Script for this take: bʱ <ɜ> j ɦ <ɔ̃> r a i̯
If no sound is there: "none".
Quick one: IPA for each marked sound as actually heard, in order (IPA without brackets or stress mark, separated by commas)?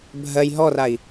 ɜ, ɔ